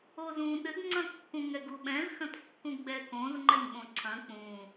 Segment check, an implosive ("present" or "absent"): present